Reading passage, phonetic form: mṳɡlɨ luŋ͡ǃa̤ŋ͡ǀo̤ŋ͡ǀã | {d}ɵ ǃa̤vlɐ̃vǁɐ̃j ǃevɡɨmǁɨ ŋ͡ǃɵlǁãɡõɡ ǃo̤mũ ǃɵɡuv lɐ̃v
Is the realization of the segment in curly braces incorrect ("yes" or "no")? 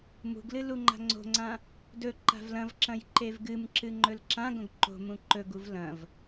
no